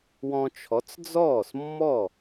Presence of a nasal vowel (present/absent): present